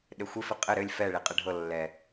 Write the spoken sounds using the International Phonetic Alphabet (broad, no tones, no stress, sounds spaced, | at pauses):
ɗ ɘ xʷ ɪ f ɪ qʼ ɘ ɾ ɘ lʲ f ɛ ɭ i qʼ ɘ ɖʱ ɤ lː ɛ